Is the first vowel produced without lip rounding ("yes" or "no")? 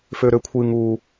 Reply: no